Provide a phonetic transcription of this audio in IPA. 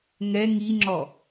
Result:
ŋ ɛ ŋ i ŋ͡ǁ ɔ

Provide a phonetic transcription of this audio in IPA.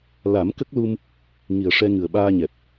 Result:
l a˨˩˦ m k ə˦˥ k̚ l u˧ m | ŋ i˨˩ ə̯ ʂ ɛ˧ ŋ ɨ˨˩ ə̯ ɓ aː˧ ɲ ɛ˨˩ p̚

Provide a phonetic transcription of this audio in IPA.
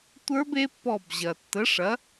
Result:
tʷ ə˞˦˥ b e˦˥ pː ɔ˦˨ b ʑ ɐ˨ tː ə˨˥ ʂ ɐ˨˥

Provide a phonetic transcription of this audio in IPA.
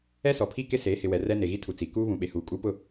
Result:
ɛ˦ s ɔ˨ pʰ i˦ k ɪ˦ s eː˨˦ h ɪ˨ w ɛ˨ r ɛ˦ n e˨ ɣ i˦ tʰ u˨ t͡s i˨ k uː˦ β ũ˨ ɓ e˨ h uː˨ kʼ u˦ p ʊ˦˨

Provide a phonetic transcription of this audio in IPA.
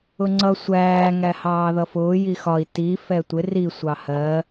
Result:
ʊ ŋ͡ǀ ʌ sʷ æː ŋ æ h ɑː ð ʌ f ʊː j i x ɒ i̯ t i f ɛ tʷ ɪ r i sʷ ɑ h ɜ

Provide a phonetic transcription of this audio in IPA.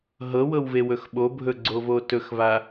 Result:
ɦ ɤ w ɤ w v e w ɵ x ɓ o bʱ ɵ ɡ͡ǀ o v o t ɵ x v a

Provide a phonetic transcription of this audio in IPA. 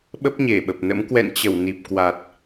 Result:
ɓ ə˦˥ p̚ ɲ e˧˩ ɓ ə˨˩ p̚ n ə̰˧˥ m k w ɛ̰˧˨ n t͡ɕ ə˧˩ w n i˨˩ p̚ k w a˨˩ t̚

